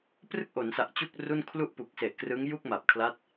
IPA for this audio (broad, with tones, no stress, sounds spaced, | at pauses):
p r ɯ˥˩ k̚ ʔ o˩˦ n s a˨˩ ʔ t͡ɕ u˥˩ k̚ r u˥˩ n kʰ l u˥˩ ʔ p u˨˩ k̚ s e˨˩ ʔ k r ɯ˦˥ ŋ j u˥˩ k̚ m a˨˩ p̚ kʰ l a˦˥ t̚